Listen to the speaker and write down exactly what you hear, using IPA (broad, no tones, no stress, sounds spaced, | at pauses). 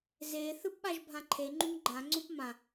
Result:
z e θ ɯ p ɓ a ʒ bʱ ã ǃʰ e ŋ͡ǃ ũ ŋ ɡ͡ǃ ã ŋ͡ǀ õ p m ã